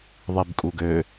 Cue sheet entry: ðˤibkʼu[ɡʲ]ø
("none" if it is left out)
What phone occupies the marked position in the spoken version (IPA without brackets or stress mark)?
ɡ